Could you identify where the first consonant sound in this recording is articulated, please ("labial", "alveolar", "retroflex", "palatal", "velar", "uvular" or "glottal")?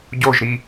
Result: palatal